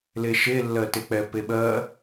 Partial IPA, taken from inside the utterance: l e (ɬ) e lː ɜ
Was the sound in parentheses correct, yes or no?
no